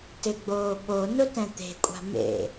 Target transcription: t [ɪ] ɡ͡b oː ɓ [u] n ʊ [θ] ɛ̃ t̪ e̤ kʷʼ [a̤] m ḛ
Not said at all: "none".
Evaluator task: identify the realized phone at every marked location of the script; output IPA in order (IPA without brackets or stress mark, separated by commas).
ɪ, o, t, a̤